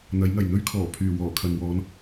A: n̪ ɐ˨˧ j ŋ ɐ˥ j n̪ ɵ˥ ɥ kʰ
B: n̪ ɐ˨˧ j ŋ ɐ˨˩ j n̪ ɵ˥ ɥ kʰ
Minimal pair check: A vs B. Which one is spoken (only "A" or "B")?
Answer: B